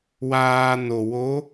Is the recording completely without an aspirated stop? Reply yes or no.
yes